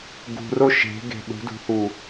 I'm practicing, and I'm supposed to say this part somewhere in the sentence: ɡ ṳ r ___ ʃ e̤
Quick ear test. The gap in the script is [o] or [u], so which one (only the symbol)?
o